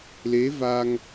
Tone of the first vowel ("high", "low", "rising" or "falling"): rising